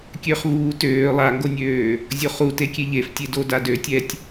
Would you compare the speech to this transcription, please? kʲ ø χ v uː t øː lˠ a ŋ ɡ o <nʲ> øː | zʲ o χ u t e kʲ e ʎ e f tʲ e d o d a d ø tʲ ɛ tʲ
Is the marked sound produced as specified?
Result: yes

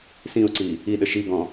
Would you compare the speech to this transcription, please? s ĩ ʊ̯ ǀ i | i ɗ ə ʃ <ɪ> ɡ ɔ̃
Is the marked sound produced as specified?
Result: no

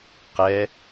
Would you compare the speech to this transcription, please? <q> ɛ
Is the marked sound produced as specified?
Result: yes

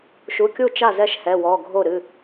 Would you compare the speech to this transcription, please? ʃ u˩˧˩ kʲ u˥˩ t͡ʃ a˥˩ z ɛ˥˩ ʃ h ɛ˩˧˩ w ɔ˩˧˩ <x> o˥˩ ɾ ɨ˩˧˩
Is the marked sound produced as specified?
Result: no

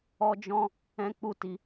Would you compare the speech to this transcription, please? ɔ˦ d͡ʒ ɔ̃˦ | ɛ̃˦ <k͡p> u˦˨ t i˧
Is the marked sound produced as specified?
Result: yes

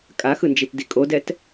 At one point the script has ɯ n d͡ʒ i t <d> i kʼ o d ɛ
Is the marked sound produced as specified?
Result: yes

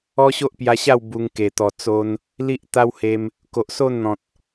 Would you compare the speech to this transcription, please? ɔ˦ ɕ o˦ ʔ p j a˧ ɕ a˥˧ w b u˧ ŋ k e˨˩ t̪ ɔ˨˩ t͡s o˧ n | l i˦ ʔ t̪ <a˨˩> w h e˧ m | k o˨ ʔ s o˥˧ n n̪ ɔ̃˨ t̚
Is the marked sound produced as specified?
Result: no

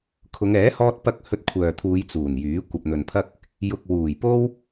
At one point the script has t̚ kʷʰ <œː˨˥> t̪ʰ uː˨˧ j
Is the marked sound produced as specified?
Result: no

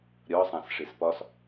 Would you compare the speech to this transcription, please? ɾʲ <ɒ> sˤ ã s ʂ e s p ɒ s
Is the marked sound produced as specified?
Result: yes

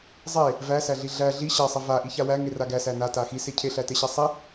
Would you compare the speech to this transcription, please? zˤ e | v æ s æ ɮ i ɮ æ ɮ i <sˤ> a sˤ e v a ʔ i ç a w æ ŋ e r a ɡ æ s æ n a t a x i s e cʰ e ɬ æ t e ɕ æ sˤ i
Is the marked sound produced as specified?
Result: no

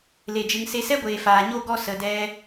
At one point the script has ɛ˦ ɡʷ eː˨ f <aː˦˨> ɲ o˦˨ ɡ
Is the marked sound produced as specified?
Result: no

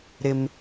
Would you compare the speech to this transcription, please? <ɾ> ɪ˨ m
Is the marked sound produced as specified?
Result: yes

